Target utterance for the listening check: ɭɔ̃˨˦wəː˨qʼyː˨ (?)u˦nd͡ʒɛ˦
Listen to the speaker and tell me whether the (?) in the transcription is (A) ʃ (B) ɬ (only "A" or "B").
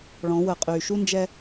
A